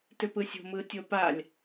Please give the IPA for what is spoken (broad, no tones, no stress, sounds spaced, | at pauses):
t ʏ p ɯ sʲ o̤ m ɯ tʲ o p a lʲ